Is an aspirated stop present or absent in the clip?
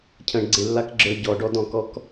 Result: present